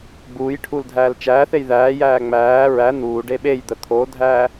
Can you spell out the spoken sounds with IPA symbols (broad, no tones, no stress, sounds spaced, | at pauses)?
ɡ͡b uː j ʈʰ u l dʱ æː l t͡ʃ æː θ e j ð æː j æː ŋ͡m æː ɹ æ n̪ uː ɖ e ɓ e j d̪ ə t̪ʰ o dʱ æː